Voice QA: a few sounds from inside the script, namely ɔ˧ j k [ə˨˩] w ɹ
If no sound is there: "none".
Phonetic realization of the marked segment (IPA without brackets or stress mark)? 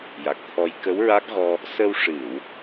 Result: ə˧˥